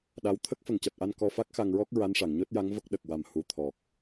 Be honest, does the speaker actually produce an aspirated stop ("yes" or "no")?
yes